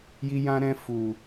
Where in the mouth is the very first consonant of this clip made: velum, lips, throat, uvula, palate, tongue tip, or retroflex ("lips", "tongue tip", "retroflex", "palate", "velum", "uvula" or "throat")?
palate